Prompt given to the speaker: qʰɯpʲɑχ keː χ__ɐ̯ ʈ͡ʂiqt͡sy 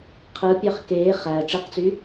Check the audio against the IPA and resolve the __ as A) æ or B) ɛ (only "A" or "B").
A